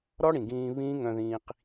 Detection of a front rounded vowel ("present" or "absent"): present